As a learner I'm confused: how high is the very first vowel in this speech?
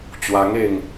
low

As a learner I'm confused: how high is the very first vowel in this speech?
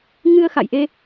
high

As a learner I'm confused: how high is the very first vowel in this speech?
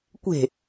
mid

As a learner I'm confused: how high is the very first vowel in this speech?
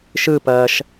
high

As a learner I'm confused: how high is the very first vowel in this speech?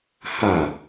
low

